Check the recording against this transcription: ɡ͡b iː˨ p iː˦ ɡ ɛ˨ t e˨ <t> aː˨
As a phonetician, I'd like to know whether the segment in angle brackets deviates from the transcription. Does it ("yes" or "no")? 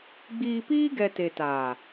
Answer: no